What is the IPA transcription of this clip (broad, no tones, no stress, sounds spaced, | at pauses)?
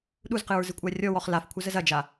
ɗ u z q ɨ ɹ z ɨ kʷʼ a rʲ ɔ w ɔ χ l a f kʷʰ ə z ə z ɐ d͡ʒ a